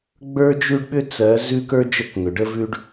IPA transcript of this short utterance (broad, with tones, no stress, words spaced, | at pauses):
ɡ͡bə˞˦d͡ʒʉ˦ɖɓʏ˦ t͡sɜ˨˦zʉ˦k ə˞˦d͡ʒə˦˨kŋʏ˨ɖə˦ vʉ˦ɖ